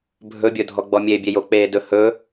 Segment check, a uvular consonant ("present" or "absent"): absent